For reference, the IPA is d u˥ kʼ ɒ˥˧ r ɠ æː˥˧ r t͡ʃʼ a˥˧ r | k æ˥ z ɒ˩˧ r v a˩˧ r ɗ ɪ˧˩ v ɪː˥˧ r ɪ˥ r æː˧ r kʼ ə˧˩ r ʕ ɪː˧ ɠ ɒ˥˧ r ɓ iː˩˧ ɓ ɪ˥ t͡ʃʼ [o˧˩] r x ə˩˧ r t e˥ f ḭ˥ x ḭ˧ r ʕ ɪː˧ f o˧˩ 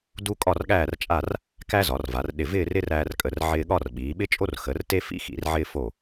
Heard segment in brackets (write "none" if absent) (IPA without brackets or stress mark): o˥